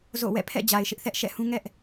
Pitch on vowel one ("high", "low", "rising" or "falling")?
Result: falling